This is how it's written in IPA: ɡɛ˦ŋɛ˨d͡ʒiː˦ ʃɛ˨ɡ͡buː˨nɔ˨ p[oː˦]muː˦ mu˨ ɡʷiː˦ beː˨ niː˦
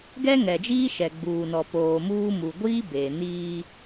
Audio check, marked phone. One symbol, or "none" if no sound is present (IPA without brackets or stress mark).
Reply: oː˨